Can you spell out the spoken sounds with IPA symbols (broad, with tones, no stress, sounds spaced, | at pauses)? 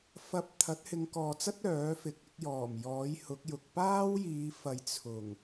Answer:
f ɐ˧ p̚ t̪ʰ ɐ˨˥ t̚ h ɪ˨˧ ŋ k ɔː˨ t͡s ɐ˥ t̚ œː˨˥ f ɪ˨˥ k̚ ɪ˨˥ k̚ j ɔː˨˩ m j ɔː˨˥ j h ʊ˨˥ k̚ j ʊ˨ k̚ p aː˥ w j iː˨˧ f ɐ˨ j t͡sʰ ʊ˨˩ ŋ